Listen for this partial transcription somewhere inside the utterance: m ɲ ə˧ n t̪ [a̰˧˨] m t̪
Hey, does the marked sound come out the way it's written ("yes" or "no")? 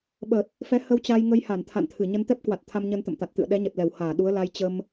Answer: no